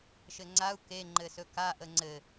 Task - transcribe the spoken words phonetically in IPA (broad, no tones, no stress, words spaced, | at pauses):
ʃɘŋ͡ǀau̯ ke ŋ͡ǃɘsɵka ʔəŋ͡ǀɘ